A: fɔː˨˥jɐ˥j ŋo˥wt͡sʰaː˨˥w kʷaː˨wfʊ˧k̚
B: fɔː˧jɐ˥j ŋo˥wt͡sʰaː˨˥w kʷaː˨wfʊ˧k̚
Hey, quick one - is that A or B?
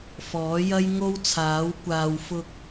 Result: A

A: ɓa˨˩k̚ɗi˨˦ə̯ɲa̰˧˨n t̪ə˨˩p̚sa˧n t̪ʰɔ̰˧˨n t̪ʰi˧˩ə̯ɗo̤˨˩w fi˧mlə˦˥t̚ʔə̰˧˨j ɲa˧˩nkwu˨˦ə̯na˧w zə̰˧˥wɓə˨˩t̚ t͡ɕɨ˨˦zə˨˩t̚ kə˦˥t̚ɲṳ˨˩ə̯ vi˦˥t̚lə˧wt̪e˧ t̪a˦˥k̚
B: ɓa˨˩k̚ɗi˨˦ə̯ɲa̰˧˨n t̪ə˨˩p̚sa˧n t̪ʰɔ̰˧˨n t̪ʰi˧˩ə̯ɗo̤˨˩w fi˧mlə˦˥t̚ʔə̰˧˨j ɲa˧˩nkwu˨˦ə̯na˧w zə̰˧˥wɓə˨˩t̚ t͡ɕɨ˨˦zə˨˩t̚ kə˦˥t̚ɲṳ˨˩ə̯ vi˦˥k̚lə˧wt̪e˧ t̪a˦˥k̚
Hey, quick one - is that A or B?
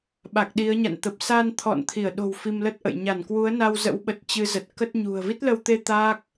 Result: A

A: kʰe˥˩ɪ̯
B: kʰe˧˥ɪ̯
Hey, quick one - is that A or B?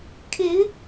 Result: B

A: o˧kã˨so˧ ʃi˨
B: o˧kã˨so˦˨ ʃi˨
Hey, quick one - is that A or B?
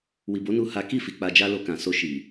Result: A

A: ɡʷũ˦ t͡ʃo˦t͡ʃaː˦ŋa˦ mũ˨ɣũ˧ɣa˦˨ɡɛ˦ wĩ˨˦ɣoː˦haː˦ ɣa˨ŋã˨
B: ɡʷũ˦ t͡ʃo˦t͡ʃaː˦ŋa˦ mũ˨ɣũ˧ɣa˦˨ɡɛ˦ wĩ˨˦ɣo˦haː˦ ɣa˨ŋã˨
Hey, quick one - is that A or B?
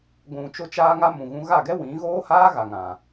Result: A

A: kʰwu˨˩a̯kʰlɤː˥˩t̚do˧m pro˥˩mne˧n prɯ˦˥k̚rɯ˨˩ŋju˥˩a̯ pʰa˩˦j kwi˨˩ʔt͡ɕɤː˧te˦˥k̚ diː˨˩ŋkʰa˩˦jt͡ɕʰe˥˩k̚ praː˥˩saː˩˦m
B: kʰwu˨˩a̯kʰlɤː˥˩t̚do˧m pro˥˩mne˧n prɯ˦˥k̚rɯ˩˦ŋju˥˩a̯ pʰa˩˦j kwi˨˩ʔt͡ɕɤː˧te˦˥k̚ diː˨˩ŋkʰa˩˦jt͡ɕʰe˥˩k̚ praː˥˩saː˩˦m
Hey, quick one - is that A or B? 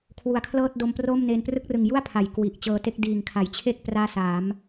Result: A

